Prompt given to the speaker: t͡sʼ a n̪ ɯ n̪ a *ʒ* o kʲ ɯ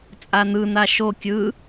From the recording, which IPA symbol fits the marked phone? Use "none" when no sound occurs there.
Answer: ʃ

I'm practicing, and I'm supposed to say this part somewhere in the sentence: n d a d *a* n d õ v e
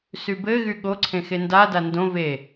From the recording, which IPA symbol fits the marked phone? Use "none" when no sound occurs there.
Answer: a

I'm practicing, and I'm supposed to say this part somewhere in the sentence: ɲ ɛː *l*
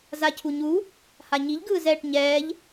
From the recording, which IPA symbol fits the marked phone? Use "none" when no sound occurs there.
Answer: ʎ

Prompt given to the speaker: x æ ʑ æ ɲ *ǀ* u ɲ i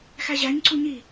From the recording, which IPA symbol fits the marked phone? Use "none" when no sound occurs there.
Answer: ǀ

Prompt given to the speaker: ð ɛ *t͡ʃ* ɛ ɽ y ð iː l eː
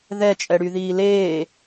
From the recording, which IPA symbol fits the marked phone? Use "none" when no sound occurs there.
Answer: t͡ʃʼ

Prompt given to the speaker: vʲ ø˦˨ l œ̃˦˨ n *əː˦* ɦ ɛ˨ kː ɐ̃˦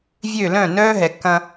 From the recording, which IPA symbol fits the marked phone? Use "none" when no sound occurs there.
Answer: œː˦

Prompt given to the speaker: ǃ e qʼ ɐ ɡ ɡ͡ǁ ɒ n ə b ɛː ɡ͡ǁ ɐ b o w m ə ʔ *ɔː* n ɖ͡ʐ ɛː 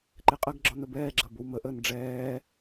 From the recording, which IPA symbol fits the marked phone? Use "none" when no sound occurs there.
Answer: əː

